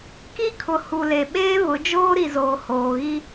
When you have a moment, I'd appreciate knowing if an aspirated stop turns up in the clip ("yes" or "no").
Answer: yes